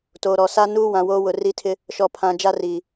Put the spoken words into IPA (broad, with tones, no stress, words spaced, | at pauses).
toː˨ɾɔ˨ sa˦nuː˦wã˨ woː˦wʊ˨ ri˦tʰɪ˦ | ʃɔ˨pʰã˨ d͡ʒa˦riː˨